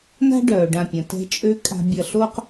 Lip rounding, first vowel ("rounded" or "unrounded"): unrounded